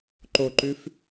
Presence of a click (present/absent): present